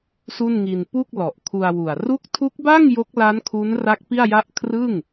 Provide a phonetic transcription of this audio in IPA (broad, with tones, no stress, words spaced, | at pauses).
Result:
su˥˩nŋi˧n pu˥˩k̚ lɔ˨˩ʔkʰu˧a̯wu˨˩a̯ ru˦˥k̚tʰu˦˥k̚ba˥˩ŋ jo˦˥k̚la˦˥n kʰu˦˥nra˦˥k̚ pi˥˩a̯ja˥˩ʔ kʰrɯ˥˩ŋ